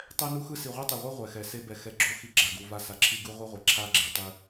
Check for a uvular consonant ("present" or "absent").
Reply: present